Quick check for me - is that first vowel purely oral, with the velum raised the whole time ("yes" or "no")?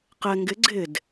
yes